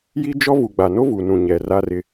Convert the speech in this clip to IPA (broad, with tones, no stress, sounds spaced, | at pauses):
j i˦ d͡ʒ ɔ˦ v u˨ ɡ͡b a˨ n o˦ v u˨ n ũ˨ ɲ ɛ˨ r a˦ r ɪ˦